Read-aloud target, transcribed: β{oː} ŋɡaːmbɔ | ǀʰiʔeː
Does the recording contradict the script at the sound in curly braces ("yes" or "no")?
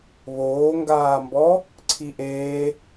no